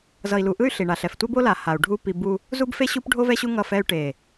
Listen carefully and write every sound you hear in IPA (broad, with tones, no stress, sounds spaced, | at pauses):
z ʌ˨ i̯ l u˨ ʔ ɯ˦ y̯ ɬ i˨ ɳ a˨ ɬ ɛ˨ f tʷ e˦ b o˦ l a˨ h a˨ u̯ ɖʱ u˦ p i˦ b u˦ | z u˦ b f e˦ ɕ u˦ p ɖʱ o˦ v ɛ˦ ɕ u˦ ŋ ʌ˦˨ f ɛ˦ y̯ ʈ e˨